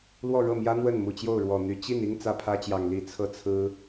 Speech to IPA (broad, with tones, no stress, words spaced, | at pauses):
lwɔ˥˧ɻɤ˥˩mjä˥ n̪wə˥˩nmu˨˩t͡ɕjo˥˩ʊ̯ ɻwɔ˨˩n̪y˧˥ t͡ɕi˥˩ni˥ŋ t͡sä˥˩pʰä˥t͡ɕjɑ˨˩ŋ li˧˥ t͡sʰɤ˥˩t͡sʰɹ̩˥